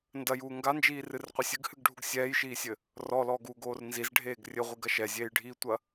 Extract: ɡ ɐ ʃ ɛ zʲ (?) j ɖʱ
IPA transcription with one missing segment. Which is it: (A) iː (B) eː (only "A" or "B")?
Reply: B